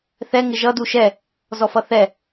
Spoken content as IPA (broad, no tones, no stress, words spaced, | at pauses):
θɛ ŋɪʒʌ duʃɛ | zɔfʌθɛ